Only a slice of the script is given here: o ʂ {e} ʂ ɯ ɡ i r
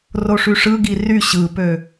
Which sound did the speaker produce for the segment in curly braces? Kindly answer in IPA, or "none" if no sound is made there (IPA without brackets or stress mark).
y